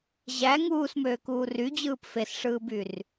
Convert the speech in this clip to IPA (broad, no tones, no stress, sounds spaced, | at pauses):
ʑ æ ŋ uː s m øː k uː r y d͡ʑ ɯː p f e s ʂ ɯː b y r